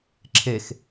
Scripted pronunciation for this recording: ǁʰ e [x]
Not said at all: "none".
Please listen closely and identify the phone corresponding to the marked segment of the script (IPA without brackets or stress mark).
x